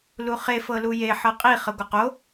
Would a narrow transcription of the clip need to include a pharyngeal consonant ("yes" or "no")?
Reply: yes